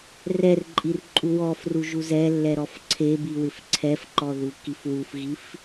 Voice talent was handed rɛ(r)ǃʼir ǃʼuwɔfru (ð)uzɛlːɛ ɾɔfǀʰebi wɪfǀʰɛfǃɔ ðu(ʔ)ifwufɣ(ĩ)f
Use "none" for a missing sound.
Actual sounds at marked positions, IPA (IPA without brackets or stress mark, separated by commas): r, ʒ, k, i